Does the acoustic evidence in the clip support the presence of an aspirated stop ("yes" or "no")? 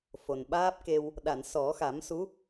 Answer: no